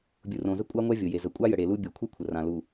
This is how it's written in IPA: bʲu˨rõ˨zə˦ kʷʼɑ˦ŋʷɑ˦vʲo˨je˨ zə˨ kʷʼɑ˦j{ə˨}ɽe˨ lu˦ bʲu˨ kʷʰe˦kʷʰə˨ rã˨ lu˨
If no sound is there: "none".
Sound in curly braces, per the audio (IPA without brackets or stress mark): ə˨